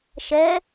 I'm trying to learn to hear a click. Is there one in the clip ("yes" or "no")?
no